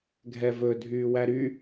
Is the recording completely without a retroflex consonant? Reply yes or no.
yes